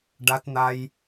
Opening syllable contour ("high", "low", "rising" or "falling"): low